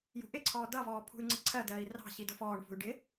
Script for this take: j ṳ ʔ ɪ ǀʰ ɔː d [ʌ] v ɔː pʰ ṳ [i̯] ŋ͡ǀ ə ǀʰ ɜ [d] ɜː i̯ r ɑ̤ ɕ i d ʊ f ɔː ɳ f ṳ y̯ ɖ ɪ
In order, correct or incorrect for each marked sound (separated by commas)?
correct, incorrect, correct